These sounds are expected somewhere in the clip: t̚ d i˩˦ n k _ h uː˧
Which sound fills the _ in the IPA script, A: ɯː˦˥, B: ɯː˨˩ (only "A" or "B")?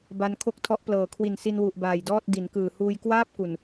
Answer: B